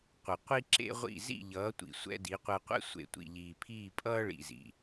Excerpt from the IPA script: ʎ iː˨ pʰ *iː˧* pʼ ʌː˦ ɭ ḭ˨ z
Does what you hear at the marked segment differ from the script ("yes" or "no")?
yes